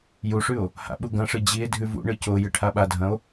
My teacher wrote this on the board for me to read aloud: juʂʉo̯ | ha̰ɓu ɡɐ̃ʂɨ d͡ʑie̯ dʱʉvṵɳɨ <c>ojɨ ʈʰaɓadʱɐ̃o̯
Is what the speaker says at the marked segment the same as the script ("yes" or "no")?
yes